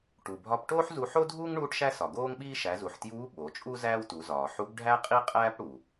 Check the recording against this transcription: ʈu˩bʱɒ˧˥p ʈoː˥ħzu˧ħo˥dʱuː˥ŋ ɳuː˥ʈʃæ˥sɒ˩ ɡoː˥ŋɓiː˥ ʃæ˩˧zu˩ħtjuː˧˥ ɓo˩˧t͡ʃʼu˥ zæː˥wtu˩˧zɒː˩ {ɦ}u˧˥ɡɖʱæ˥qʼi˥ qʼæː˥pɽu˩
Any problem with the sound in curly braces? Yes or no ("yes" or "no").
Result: yes